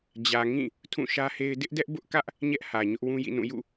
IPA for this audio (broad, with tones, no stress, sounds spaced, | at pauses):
d͡ʑ ä˨ ŋ ĩ˦˨ | tʰ ũ˦˨ ʃ ä˦ h e˦ ɪ̯ d ɪ˦ ʔ d ɛ˦ ʔ b ʊ˦ ʔ k ä˦ ʔ | ɲ ɛ˦ ʔ h ä˨ ɲ ʊ˦ ʔ w ũ˦ j ḭ˦˨ n ũ˦˨ j ṵ˦˨